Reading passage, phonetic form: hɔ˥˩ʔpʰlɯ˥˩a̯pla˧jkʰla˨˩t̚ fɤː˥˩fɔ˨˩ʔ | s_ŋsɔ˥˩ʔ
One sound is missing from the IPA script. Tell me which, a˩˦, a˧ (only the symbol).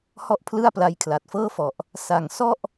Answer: a˩˦